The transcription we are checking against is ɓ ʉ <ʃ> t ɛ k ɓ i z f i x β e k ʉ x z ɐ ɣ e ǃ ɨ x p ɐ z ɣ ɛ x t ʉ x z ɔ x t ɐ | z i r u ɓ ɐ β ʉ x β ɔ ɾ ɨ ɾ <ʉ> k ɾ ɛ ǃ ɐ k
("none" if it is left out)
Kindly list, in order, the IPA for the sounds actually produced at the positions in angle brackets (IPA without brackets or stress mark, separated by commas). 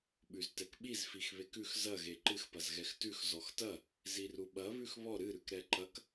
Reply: z, ʉ